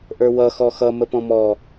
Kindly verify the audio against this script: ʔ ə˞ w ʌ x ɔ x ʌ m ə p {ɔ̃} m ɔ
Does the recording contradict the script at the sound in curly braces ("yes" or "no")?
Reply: no